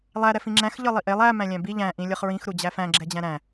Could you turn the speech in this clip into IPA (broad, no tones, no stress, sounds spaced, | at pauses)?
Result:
lˠ æ ɾ ɛ f ĩ ŋ͡ǁ æ̃ x ʎ ɤ lˠ i ʔ e lˠ æ m æ̃ lʲ æ̃ b i ʎ æ̃ ʔ ĩ lʲ ɤ χ ɹ ĩ x ɾ u d͡ʑ æ f æ̃ ɡ͡ǁ ɛ d͡ʑ æ̃ ɾ æ̃